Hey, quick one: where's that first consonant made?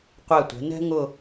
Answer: uvula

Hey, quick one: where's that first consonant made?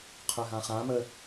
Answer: uvula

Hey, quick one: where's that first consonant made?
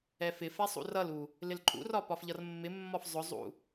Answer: lips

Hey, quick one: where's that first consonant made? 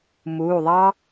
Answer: lips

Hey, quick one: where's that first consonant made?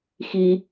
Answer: velum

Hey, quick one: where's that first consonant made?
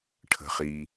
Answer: retroflex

